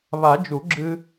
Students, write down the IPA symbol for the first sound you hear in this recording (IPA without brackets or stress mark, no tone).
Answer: β